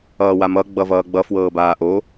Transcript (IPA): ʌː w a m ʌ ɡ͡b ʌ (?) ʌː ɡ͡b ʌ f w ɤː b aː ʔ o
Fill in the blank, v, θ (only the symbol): v